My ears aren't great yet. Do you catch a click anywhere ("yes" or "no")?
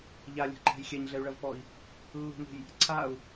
yes